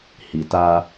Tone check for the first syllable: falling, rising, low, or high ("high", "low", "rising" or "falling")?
low